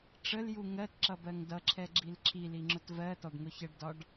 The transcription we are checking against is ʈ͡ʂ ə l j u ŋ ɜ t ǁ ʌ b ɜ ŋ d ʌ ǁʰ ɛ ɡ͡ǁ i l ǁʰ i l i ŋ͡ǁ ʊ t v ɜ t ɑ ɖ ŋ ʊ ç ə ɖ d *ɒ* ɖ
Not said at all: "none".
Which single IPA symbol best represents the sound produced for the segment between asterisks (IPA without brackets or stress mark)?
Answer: ɒ